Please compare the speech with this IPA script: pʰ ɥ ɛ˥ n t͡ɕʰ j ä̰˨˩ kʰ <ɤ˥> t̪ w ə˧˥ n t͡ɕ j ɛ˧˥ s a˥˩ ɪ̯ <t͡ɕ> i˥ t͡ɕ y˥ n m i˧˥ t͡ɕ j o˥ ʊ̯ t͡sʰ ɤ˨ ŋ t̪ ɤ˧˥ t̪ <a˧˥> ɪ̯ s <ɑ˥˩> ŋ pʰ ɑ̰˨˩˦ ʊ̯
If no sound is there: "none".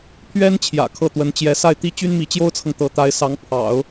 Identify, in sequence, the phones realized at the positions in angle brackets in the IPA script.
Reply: ɤ˥˩, t̪, a˧˥, ɑ˧˥

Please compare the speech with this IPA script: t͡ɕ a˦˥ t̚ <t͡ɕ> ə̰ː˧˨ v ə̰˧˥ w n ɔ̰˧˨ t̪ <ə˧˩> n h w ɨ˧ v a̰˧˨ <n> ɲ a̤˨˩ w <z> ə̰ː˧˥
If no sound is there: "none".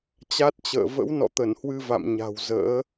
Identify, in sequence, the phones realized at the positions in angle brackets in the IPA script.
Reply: t͡ɕ, ə˧˩, m, z

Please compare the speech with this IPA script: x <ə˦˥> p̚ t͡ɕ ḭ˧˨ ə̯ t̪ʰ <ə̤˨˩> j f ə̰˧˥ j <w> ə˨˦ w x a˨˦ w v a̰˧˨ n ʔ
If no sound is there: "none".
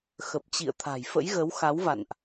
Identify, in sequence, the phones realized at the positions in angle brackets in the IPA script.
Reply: ə˨˩, a̤˨˩, ɣ

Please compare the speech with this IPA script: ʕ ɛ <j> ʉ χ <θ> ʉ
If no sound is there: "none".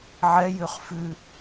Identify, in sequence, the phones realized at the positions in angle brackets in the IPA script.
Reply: j, f

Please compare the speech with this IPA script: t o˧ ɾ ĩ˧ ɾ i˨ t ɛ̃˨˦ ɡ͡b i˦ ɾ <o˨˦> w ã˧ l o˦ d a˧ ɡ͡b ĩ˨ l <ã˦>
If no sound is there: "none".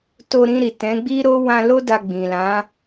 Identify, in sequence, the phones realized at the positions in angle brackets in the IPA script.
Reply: o˦, ã˨˦

